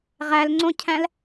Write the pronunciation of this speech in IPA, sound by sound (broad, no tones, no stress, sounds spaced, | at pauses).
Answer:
ʁ æ l ŋ͡ǀ õ cʰ æ̃ l